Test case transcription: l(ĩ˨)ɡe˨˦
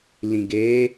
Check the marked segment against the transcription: correct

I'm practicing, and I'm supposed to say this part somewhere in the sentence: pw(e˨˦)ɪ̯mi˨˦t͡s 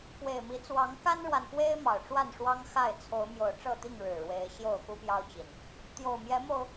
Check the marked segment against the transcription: incorrect: e˨˩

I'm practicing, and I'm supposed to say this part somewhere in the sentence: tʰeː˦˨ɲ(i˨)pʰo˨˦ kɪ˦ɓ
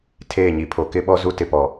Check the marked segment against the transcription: correct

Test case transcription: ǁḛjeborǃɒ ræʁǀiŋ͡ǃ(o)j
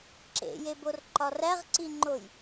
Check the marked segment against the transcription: correct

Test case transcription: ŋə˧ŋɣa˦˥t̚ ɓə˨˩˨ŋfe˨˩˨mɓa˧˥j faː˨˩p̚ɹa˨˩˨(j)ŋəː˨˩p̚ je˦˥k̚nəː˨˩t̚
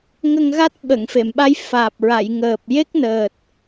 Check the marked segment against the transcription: correct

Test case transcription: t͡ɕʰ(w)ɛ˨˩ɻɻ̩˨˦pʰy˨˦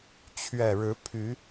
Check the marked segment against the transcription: incorrect: ɥ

